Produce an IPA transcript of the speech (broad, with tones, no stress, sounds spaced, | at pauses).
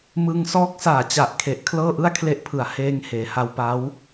m ɯ˧ ŋ s ɔː˦˥ k̚ s aː˨˩ t͡ɕ a˨˩ ʔ kʰ e˨˩ ʔ kʰ l ɤː˥˩ ʔ ɯ˥˩ a̯ kʰ l e˥˩ ʔ pʰ ɯ˨˩ a̯ h eː˧ ŋ h eː˩˦ h a˧ w p a˦˥ w